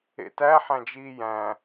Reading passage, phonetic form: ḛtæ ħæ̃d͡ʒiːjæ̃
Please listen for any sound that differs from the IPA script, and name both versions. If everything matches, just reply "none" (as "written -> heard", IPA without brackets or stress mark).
none